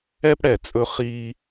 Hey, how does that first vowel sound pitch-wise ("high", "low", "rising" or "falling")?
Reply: high